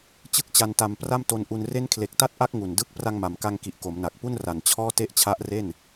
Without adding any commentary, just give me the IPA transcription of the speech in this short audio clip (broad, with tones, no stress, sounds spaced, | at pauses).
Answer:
t͡ɕ ɯ˥˩ k̚ t͡ɕ a˧ n t a˧ m p r a˥˩ m t o˧ n ʔ u˧ n r e˥˩ n kʰ l e˨˩ k̚ t a˥˩ t̚ ʔ a˦˥ k̚ ŋ u˨˩ n d ɯ˥˩ k̚ p r a˧ ŋ m a˩˦ m k a˧ ŋ k i˨˩ ʔ k o˩˦ m n a˨˩ k̚ p u˥˩ n r a˨˩ n t͡ɕʰ ɔː˥˩ t e˥˩ ʔ t͡ɕʰ a˦˥ ʔ r e˥˩ n